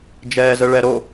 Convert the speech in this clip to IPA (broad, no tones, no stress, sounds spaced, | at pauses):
d͡ʒ ɛː z ə ɭ ɛ ɾ o